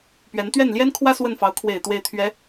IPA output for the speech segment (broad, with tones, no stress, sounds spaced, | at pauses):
p ɥ ɛ˧˥ n t̪ ɥ ɛ˥˩ n l j ɛ˥ n kʰ w ä˥ s w ə˥˩ n f ɑ˧˥ ʊ̯ kʰ w e˨˩ ɪ̯ t̪ w e˥˩ ɪ̯ t̪ʰ ɥ ɛ˧˥